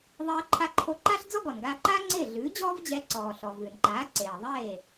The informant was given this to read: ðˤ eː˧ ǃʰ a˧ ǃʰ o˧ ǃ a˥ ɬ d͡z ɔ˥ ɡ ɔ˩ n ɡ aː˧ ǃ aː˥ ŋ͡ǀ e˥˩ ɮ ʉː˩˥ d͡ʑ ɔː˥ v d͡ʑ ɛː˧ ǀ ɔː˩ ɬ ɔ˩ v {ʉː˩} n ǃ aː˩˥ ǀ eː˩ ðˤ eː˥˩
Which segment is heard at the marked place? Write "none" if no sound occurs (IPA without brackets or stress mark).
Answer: ʉː˩